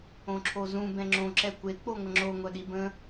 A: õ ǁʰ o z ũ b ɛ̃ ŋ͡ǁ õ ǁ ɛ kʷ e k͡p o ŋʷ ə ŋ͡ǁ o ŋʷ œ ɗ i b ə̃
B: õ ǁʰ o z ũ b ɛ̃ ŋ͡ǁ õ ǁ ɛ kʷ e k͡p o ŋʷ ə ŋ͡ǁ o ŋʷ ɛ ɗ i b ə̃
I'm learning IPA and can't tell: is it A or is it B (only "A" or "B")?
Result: A